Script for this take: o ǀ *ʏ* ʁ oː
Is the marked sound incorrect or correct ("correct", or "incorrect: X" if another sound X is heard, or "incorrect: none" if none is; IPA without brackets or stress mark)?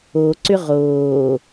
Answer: correct